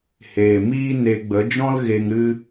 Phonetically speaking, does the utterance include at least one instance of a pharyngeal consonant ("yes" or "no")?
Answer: no